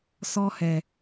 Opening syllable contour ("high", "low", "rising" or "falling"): high